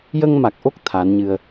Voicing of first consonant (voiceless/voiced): voiced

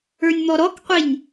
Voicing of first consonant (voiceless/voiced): voiced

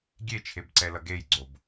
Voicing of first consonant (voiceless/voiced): voiced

